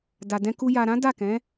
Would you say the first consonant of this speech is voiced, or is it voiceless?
voiced